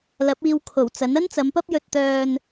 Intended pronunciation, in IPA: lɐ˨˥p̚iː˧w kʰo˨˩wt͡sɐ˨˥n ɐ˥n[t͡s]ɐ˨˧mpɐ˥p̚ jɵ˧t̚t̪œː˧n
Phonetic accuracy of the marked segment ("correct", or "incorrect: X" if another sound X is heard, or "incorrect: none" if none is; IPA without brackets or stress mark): correct